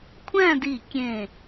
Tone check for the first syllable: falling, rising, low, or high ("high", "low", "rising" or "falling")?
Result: falling